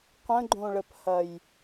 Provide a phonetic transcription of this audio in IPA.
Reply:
qʷə̃ɡ͡ǃõɭəphɐj

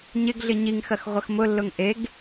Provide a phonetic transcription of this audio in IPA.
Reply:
ɲɪɡɮɪ ɲiŋxɐx ʁʷɐxmʊlːʊŋ ʔeɡ

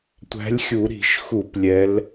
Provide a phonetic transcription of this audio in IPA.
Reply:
tʷæ̤˨˦lʲxʲu˧˩˧ɾi̤˧˩˧ʃxu˧˩˧p lʲɛ˨˦l

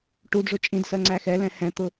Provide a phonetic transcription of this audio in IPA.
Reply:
ʈudʐʊ t͡ʃʼĩdsɜ ŋ͡ǀæxɛlɛ̃ hɛ̃t̪ʊ

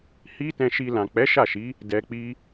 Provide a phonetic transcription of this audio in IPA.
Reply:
hi˦tɛ̃˧ʃi˧ lã˨k͡pɛ˨˦ ʃa˦˨ʃi˨˦ | dɛ˧k͡pi˦

